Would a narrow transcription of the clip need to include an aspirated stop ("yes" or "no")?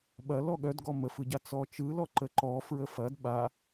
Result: no